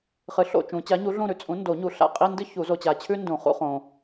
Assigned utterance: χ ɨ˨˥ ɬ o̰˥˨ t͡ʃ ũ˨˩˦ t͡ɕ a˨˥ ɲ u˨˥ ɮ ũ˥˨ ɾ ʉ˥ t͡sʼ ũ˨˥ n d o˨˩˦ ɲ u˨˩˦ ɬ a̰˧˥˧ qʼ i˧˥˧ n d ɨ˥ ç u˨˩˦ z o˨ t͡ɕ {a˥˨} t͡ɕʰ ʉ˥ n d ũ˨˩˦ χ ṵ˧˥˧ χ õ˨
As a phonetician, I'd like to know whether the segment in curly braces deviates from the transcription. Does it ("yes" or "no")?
yes